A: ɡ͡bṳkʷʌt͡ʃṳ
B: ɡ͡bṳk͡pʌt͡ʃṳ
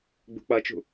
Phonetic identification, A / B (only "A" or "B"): B